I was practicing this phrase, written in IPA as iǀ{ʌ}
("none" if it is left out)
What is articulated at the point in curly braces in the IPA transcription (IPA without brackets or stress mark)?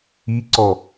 ɔ